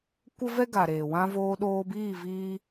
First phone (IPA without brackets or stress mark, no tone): kʷ